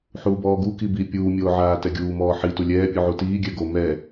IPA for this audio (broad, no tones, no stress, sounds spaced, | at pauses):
ħ uː b ɔː ɡ u k i b i pʲ uː mʲ oː ʕ aː t ɛ ɡʲ uː m ɔː ħ i t u lʲ ɛː pʲ u ʕ u t iː ɡʲ ɛ ɡ o m ɛ